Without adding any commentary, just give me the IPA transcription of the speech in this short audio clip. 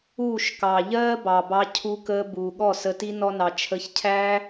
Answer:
uː˦˨ ʃ k ɑ˨ ʎ ɜː˦ b ɑ˨ b ɑ˧ cʰ u˧ k əː˧ b uː˨ ɠ ɔ˦˨ s ə˧ t i˦ n ɔ˦ n ɑ˧ t͡ʃʰ ə˧ ç cʰ æ˦

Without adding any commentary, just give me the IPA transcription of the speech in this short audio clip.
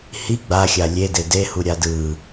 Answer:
h i ɡ͡b a xʲ a lʲ e d e d e h u ɾʲ a d ɯ

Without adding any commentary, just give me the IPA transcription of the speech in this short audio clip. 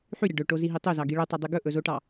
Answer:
ħ y ɾʲ ɑ ɖ ɵ ʈ o z i ɦ i tˤ ø z ɑ ɡ i ɭ ø tˤ ɵ dˤ y ɡ ɵ ʔ ɵ z o ʈ ɑ

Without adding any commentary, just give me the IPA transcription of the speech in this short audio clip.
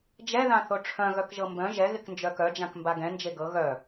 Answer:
d͡ʒ ɛ ð ã θ o ʈ͡ʂʰ œ̃ ɣ œ k ʒ ɤ m b œ̃ ʒ ɛ ɣ ɪ k n d͡ʒ œ k œ d͡ʒ ã k m b a ɡ ɛ̃ n d͡ʒ e ɡ ɤ ɣ œ

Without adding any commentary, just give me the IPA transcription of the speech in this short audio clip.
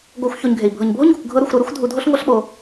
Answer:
ɡ o˧ xʷ ç o˧ ɲ ɡʱ e˨ i̯ bʱ ɤ˨ ɲ bʱ o˦ ɲ ɡ u˨ kʷ ɡʱ ɤ˧ ɾ u˨ xʷ ɾ ɤ˧ ɾ o˦ xʷ dʱ u˧ dʱ o˦ ɬ ŋʷ ɤ˦ ɬ ɓ o˧

